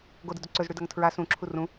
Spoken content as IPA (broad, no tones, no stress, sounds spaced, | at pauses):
ɡ o d ɨ d ɵ ǀ ɵ z ɽ ʉ d ɐ ŋ tʰ ɹ a s ũ ǁʰ u r ũ